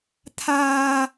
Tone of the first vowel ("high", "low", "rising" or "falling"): high